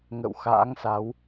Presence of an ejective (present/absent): absent